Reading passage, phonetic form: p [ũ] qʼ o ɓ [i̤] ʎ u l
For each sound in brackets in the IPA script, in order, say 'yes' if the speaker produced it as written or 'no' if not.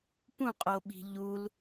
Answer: yes, yes

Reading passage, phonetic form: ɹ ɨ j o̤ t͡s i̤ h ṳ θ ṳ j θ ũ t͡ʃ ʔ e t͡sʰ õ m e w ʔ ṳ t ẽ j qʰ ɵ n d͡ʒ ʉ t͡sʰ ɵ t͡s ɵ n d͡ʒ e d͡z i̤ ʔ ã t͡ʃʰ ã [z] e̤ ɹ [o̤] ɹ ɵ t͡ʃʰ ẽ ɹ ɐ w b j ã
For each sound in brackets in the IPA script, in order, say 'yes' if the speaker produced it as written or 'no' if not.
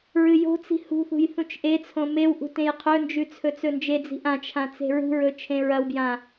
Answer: no, no

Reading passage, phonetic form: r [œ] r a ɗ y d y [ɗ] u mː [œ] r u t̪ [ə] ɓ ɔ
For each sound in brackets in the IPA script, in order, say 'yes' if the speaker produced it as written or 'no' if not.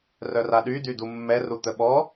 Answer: yes, no, no, yes

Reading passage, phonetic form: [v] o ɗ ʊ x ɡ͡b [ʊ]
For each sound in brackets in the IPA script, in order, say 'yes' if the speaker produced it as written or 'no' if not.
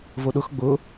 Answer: yes, yes

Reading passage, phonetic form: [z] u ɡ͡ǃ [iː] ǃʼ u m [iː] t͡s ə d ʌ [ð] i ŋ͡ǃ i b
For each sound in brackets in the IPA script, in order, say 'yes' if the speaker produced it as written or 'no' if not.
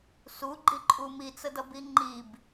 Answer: no, no, no, no

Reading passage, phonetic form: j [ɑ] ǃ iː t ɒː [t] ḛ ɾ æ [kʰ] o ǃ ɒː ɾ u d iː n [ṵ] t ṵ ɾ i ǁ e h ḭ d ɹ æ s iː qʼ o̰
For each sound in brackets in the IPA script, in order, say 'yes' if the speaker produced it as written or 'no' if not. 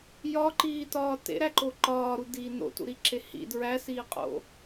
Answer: no, yes, no, no

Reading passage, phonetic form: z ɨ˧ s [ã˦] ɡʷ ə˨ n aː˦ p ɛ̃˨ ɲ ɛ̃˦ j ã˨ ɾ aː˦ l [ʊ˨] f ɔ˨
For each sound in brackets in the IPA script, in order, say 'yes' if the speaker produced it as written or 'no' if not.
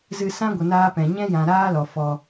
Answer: yes, no

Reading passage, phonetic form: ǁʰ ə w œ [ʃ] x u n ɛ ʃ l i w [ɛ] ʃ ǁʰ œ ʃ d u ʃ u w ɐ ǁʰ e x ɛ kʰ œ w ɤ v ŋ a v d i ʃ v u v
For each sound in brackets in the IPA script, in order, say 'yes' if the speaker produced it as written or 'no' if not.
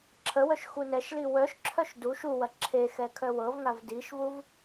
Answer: yes, no

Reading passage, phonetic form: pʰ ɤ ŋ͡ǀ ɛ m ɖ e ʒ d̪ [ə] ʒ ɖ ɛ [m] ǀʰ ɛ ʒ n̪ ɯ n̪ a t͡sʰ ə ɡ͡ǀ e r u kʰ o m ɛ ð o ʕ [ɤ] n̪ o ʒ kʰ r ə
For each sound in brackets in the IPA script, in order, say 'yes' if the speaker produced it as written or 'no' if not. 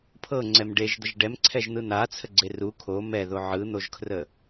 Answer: yes, yes, no

